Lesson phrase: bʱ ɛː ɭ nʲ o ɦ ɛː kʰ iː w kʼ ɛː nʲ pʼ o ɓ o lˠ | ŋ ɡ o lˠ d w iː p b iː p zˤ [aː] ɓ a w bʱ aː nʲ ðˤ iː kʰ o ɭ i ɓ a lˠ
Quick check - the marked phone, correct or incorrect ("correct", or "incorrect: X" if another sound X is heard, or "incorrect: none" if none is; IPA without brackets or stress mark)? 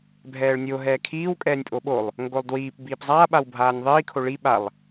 correct